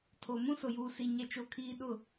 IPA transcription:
tʰo˨ mũ˦sʊ˨juː˨si˨ ɲɛ˦t͡ʃo˦kʰiː˦ ɗʊ˦˨

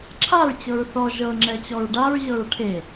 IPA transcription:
ǁʰaɹt͡ɕɤɹ θɔ ʒɤŋ͡ǁɛt͡ɕɔɹ ɖaɹʑɤɹ ʈʰe

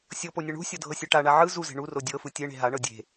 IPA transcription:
sʲɤponʲɤ ɳṳsʲɔdʱɤsʲe ʈaɳa ʕɯ zuze̤ ɳuro dʲɤfɯ tʲeɳe̤ ɦaɳɤ dʲe̤

